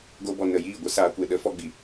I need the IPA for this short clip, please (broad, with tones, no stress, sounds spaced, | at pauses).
ɡ o˧ b ɔ˨ n ə˨ j iː˦˨ ɡʷ ə˧ s aː˨ kʷ e˨ ɗ ə˨˦ f ɔ˧ ɡ͡b i˨